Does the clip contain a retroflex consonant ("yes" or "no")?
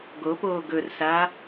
no